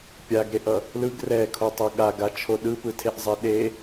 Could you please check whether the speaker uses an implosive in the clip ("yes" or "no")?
yes